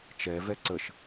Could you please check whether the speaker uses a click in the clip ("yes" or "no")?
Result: yes